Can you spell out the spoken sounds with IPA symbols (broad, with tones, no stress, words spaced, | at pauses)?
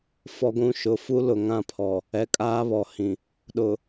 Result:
fɔ˨ɡʷũ˨ ʃʊ˨fu˦lʊ˨ ŋã˦pʰɔ˨ | ɛ˨kʼaː˦βɔ˨hĩ˨ | ɗʊ˨